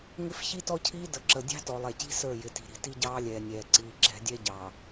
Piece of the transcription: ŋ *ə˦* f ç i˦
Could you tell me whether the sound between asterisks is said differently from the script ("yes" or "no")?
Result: yes